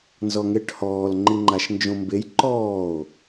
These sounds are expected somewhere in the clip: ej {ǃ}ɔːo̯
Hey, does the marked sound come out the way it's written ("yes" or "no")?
yes